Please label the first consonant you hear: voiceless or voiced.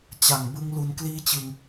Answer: voiceless